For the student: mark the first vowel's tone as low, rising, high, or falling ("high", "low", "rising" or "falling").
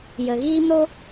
low